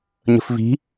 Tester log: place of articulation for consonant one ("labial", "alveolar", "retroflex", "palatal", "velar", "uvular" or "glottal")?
palatal